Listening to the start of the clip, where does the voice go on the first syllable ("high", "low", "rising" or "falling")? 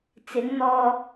rising